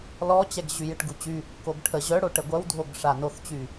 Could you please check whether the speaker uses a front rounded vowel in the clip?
yes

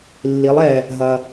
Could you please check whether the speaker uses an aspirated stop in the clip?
no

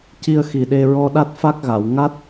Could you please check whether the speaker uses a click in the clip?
no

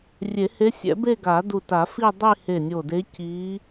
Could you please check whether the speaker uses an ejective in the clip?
no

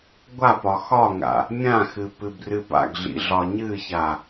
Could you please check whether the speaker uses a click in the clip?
no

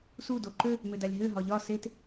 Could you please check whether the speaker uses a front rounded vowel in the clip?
yes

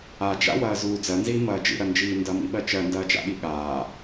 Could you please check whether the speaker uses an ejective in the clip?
no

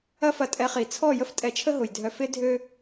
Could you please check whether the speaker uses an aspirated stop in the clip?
yes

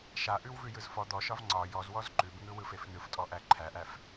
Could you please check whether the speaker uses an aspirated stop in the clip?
yes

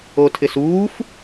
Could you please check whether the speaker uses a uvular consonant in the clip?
no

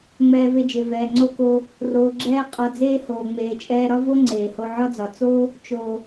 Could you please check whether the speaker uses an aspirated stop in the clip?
no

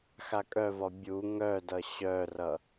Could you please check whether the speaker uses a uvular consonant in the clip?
no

